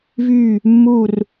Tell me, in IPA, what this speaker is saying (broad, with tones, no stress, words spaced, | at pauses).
vyː˥˧ | mːuː˥˧r